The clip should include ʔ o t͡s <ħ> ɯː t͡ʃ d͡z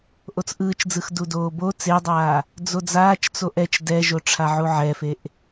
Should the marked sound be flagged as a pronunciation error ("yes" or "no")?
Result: yes